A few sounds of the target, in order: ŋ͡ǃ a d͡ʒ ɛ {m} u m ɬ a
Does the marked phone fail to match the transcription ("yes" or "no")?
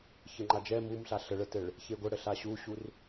no